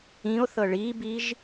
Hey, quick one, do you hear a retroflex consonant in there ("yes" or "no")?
yes